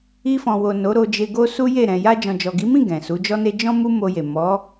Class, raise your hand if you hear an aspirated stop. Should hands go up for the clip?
no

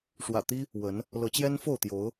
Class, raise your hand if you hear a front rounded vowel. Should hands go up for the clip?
no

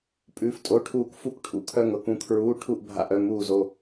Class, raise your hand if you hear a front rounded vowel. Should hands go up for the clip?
yes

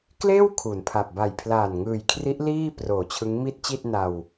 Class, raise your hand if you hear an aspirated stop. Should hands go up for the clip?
yes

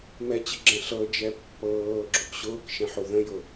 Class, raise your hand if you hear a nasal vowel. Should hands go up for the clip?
yes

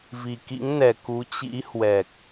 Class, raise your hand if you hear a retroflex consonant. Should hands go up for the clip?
no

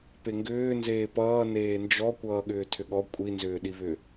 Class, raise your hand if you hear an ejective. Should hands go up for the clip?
yes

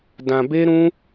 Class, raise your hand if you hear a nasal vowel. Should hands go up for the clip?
yes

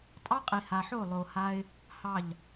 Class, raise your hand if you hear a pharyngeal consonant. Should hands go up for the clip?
yes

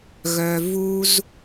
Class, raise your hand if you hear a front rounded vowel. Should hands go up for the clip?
yes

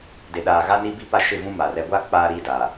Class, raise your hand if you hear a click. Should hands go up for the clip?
no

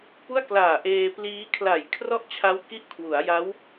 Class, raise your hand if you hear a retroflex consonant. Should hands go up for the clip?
no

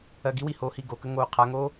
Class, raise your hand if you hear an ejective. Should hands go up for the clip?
no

